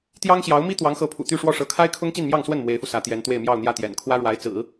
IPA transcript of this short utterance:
t̪ j ɑ˥ ŋ ɕ j ɑ˧˥ ʊ̯ m i˥ t̪ w ɑ˧˥ ŋ x ɤ˧˥ pʰ ṵ˨˩ t̪ y˥˧ ʂ w ɔ˥˩ ʂ ɤ˧˥ kʰ a˥ ɪ̯ kʰ ʊ˥ ŋ t͡ɕ i˥˧ n m j ɑ˥˧ ŋ s w ə˥˩ n m w e˧˥ ɪ̯ f u˧ s ä˧˥ t̪ j ɛ˧˥ n t̪ w e˥˧ ɪ̯ m j ɑ˥˧ ʊ̯ n̪ j ä˥˩ t̪ j ɛ̰˨˩ n kʰ w ä˥ ɻ w a˧˥ ɪ̯ t͡s ɹ̩˨˩˦

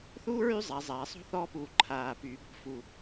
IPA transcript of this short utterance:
θ uː˥ ɹ y˥˧ zˤ a˩˧ zˤ aː˩˧ sˤ o̤˥˧ θ ɔː˥˧ p uː˧˩ ǃʰ aː˧˩ p yː˩˧ b ɔ̤˧˩ f u˧˩

